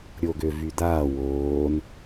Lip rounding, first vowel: rounded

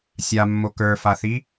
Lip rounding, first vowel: unrounded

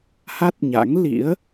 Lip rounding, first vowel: unrounded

